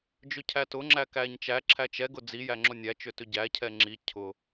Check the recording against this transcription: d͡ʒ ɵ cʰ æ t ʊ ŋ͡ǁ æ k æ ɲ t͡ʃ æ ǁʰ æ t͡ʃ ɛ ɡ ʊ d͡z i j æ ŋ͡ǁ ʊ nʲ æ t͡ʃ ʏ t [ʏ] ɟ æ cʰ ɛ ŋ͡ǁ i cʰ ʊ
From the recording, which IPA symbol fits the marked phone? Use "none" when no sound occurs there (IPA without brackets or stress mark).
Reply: ʏ